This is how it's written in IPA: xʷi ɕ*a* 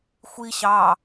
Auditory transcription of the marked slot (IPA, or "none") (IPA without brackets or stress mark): ɑ